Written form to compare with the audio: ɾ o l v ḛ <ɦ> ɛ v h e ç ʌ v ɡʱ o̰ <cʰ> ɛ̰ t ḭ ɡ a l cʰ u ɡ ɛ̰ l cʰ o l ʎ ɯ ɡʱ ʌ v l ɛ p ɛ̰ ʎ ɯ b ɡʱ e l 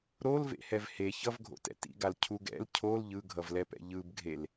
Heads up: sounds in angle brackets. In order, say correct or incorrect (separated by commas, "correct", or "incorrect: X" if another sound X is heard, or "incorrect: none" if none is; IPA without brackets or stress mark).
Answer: incorrect: h, incorrect: t